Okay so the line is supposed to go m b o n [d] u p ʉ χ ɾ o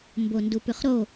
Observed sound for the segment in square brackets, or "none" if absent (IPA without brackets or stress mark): d